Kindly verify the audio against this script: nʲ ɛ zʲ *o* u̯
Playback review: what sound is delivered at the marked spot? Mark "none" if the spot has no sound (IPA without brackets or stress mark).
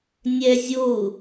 o